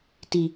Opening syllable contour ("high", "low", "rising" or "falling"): low